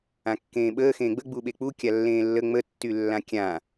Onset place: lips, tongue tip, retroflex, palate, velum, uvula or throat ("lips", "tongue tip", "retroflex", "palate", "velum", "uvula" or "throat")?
velum